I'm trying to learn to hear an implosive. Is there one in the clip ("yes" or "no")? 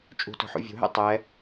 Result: no